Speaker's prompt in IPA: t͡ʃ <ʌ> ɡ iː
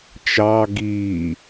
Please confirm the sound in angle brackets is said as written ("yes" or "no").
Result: no